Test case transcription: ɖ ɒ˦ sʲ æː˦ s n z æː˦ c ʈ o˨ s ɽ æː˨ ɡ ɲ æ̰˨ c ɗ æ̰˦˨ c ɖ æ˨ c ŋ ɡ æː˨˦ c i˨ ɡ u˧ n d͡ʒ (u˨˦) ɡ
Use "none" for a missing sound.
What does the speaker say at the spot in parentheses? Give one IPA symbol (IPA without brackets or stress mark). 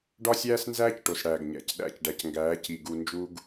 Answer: u˦